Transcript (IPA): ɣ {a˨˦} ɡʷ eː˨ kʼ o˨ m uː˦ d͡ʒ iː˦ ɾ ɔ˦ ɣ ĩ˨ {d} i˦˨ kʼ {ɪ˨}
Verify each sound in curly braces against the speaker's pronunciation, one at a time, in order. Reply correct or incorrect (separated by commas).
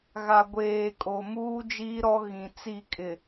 incorrect, incorrect, correct